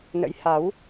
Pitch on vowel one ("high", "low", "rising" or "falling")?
rising